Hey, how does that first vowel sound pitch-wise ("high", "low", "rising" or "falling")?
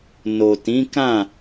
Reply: low